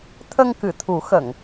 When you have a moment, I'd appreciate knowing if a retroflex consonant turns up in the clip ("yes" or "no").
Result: no